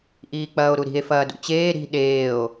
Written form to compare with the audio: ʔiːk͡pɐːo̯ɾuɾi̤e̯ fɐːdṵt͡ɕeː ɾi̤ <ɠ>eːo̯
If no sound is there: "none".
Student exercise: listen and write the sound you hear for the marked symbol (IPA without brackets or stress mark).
ɗ